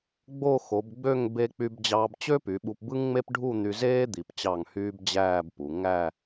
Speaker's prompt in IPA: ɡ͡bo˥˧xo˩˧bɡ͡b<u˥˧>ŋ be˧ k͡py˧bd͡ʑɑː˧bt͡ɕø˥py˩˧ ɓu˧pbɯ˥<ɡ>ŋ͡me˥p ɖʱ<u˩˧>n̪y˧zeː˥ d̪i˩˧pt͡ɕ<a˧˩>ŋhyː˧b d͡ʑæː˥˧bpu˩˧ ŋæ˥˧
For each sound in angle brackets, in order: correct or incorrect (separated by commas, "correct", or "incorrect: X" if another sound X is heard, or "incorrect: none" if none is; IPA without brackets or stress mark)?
incorrect: ø˥˧, incorrect: ŋ, incorrect: u˥˧, incorrect: ɑ˧˩